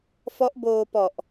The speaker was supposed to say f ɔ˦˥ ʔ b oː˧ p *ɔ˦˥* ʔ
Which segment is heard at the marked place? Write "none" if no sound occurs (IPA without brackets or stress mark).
ɔ˨˩